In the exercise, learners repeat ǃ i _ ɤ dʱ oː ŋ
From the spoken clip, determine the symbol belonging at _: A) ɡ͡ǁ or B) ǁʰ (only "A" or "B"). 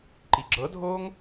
A